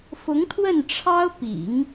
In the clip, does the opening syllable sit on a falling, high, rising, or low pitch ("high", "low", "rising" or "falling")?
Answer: rising